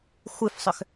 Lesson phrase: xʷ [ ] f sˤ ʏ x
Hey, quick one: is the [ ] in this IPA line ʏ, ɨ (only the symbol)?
ɨ